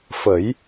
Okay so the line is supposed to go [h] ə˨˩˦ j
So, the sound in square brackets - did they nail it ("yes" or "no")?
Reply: no